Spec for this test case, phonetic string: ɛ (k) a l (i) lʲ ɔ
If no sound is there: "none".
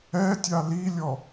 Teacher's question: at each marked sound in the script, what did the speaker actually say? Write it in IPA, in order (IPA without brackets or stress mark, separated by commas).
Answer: tʲ, i